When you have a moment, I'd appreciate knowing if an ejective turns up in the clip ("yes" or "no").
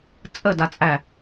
yes